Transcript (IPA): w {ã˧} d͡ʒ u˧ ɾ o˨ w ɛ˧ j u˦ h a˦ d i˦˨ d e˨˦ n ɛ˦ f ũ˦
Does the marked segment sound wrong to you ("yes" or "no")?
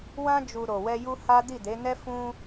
yes